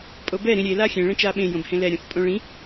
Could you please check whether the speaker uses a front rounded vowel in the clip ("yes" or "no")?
no